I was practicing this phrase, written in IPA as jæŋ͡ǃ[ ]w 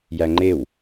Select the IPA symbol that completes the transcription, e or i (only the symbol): e